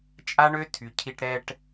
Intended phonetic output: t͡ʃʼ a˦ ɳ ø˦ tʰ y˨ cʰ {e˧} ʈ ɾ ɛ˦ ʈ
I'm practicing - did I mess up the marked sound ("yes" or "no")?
yes